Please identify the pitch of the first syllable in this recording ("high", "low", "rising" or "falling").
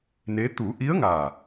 rising